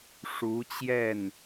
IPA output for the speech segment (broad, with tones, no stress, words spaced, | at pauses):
ʂu˧˥t͡ɕjɛ˥˩n